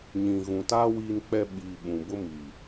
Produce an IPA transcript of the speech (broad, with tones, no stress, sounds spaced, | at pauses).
ɲ ĩ˨ ɣ ũ˨ t a˦ w iː˦ n k͡p ɛ˦ ɓ iː˨ ɓ ũ˨ b ʊ˦ m iː˨